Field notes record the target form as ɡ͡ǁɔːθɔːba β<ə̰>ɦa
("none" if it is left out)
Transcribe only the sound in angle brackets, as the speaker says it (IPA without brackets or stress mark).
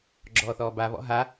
ɔ̰